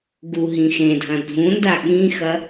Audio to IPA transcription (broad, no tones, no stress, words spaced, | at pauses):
ɡuɦĩxẽdʱɐ̃ dʱũnda ɠĩxɐ